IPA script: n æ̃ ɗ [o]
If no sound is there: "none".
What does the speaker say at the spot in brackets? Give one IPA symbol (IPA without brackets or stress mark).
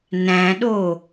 o